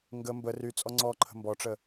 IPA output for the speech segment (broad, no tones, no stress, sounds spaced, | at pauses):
ŋ ɡ ə m b ə r y t͡sʼ ɔ ŋ͡ǀ ɔ ǃʰ ə̤ m b ɔ ʈ͡ʂ ə